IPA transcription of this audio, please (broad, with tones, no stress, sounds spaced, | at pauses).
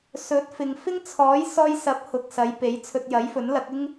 s ɵ˨˥ t̚ f ɪ˨ ŋ f ɪ˥ ŋ t͡sʰ ɔː˨˥ j s ɔː˧ j s ɐ˨˥ p̚ h ʊ˨ k̚ s ɐ˨˧ j p e˨˥ j t͡sʰ ɵ˧ t̚ j ɐ˨˥ j f ɵ˨˥ n l ɐ˨˥ k̚ ɪ˥ ŋ